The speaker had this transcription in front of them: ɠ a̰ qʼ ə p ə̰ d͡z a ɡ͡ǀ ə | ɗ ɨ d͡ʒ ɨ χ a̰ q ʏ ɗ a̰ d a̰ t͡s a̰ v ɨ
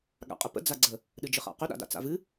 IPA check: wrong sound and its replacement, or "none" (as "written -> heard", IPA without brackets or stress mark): none